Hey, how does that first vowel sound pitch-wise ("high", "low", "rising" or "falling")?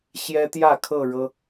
high